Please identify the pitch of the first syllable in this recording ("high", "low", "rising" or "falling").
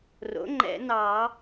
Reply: rising